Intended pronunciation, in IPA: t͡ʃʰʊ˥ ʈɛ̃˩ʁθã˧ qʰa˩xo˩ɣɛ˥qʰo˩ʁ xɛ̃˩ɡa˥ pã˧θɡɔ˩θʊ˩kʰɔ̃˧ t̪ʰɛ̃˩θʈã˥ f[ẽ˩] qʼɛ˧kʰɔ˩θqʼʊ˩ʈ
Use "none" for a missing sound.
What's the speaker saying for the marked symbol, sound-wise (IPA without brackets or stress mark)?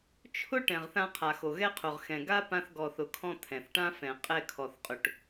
ɛ̃˩